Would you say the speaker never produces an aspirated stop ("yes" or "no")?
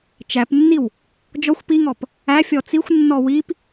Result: yes